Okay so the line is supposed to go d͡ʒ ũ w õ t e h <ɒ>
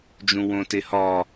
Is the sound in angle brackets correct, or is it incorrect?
correct